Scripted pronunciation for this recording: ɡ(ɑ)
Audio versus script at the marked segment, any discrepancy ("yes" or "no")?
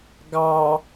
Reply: no